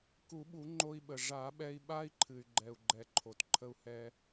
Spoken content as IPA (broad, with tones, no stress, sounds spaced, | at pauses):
k u˨˩˦ ɓ u˨˩˦ ŋ͡ǃ o˧ i̯ ɓ ə˩ ʐ a˨˩˦ ɓ ɛ˧ i̯ ɓ a˦˥ i̯ ǃʰ ɨ˩ y̯ ɡ͡ǃ ɛ˩ u̯ ɡ͡ǃ ɛ˩ ǃʰ o˩ t ǃʰ ə˧ u̯ h ɛ˧